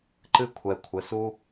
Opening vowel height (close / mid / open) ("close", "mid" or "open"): close